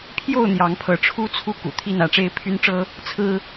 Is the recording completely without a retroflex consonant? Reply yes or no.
no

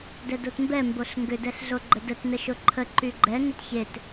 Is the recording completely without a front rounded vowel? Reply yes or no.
no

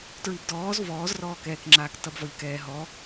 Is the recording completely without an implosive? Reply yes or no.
yes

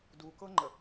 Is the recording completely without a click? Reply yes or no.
no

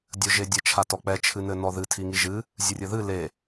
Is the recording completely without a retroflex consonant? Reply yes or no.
yes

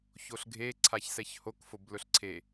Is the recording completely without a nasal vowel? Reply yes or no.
yes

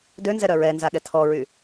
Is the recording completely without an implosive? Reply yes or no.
no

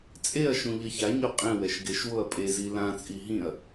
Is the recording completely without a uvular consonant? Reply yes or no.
no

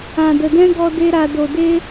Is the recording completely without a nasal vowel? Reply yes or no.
no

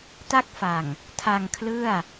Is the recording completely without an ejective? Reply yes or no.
yes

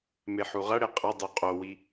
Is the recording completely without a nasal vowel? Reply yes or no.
yes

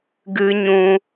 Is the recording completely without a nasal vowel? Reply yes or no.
no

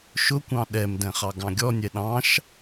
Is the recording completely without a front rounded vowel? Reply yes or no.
yes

